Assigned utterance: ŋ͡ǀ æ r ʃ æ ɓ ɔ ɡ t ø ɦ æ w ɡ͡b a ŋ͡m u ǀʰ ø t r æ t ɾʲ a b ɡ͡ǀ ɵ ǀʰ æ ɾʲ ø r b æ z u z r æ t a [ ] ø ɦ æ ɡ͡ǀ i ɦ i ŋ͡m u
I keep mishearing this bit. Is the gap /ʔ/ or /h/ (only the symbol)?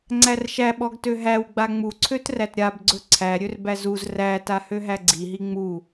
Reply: h